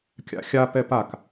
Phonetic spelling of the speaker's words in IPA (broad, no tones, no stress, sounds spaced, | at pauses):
kʲ a̰ xʲ a p ɛ p a k